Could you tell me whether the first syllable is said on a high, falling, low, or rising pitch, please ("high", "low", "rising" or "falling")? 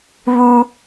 high